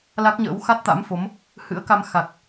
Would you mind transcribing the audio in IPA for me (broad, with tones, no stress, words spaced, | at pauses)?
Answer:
la˦˥k̚ɲə̰ː˧˥w xa˦˥t̚t̪a̰˧˥mfo˨˦m | hɨ̰˧˥ə̯ka˧m xa˨˩k̚